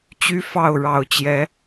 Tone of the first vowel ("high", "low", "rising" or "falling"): high